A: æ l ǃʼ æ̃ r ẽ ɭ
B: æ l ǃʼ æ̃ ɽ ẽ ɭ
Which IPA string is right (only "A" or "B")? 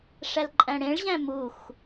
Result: B